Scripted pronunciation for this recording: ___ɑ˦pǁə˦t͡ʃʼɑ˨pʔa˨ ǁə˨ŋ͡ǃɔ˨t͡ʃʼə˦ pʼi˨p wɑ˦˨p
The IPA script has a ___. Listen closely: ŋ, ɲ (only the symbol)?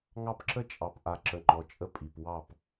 ŋ